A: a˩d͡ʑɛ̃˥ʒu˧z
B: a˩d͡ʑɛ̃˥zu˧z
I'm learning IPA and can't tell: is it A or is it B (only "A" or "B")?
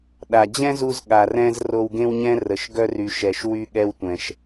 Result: B